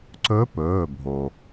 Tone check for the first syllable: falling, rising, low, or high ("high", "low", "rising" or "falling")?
rising